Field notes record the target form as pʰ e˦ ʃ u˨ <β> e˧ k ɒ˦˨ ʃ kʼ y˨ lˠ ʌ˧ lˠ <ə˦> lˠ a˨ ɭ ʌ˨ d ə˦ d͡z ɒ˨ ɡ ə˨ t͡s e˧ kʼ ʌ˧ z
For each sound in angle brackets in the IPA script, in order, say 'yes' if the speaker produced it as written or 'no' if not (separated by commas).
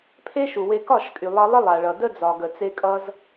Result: no, yes